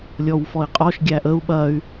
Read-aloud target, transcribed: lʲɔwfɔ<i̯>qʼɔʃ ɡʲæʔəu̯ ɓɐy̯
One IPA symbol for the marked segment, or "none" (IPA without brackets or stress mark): i̯